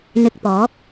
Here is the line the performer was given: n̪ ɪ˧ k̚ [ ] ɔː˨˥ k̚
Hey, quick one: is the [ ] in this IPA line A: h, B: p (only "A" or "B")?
B